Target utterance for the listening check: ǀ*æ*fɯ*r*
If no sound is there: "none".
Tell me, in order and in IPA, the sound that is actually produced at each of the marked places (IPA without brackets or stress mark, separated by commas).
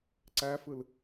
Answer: æ, l